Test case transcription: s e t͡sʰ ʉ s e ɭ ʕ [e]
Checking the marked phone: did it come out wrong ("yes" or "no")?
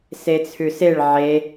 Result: no